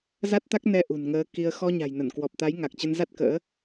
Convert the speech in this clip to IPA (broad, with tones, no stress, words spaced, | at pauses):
za˦˥t̚t̪a˦˥k̚nɛ˧ ʔṳ˨˩nŋəː˨˦ ki˧ə̯ xɔ˧ɲa̤˨˩j nə˧˩nkwɔ˨˩p̚t̪a˨˦j ŋa˨˩k̚t͡ɕə˧nza˦˥t̚kə̰ː˧˥